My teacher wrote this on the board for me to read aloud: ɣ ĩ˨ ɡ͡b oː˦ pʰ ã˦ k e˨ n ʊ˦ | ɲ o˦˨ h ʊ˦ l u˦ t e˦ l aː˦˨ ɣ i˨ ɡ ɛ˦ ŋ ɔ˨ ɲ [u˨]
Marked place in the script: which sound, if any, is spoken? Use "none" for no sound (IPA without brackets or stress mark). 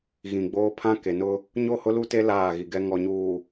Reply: uː˨